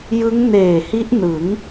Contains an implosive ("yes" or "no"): no